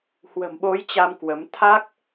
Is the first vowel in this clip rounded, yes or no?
no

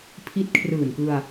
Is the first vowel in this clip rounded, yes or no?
no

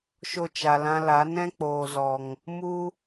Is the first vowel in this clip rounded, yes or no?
yes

